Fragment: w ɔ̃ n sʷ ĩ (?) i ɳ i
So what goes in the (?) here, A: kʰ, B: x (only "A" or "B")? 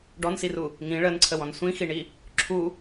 B